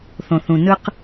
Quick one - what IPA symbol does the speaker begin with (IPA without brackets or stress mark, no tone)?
θ